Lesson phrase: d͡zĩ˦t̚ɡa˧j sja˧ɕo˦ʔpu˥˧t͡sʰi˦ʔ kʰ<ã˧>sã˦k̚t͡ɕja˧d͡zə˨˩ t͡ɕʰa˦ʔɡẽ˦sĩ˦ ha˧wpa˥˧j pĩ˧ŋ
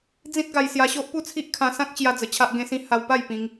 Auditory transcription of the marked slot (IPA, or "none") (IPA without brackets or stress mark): ã˧